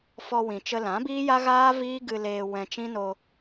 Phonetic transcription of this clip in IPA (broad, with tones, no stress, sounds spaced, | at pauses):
f ɔ˧ w ĩ˨ t͡ʃ ə˧ l ã˨˦ b iː˦ j a˦ ɣ aː˦ v iː˦ ɡ ɨ˧ l eː˧ w ɛ̃˧ t͡ʃ ĩ˦ n o˧